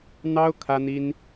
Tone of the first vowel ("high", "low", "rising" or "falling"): high